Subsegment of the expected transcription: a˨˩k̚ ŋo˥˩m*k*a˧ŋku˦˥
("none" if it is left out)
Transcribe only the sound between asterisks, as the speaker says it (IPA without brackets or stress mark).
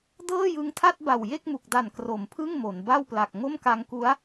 k